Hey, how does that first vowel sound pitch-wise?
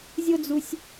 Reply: high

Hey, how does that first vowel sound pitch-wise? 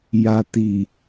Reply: low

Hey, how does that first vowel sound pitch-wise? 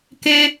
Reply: high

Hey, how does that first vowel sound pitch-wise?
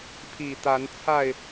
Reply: low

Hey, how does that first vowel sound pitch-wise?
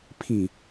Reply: low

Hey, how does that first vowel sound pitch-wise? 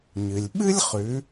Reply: low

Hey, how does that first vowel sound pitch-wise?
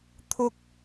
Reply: high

